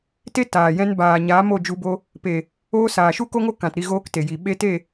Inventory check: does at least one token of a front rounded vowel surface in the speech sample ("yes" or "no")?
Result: no